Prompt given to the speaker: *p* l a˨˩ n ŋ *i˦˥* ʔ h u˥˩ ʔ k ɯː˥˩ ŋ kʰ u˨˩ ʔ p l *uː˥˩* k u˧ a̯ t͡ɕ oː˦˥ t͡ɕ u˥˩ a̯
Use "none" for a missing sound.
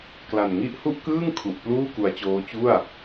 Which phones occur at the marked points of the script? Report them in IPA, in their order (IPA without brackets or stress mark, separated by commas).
k, i˦˥, uː˥˩